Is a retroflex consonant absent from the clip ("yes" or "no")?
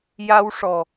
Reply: no